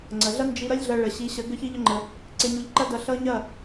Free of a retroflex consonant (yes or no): no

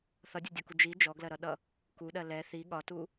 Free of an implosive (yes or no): no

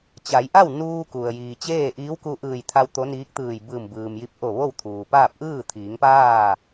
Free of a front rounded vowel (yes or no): yes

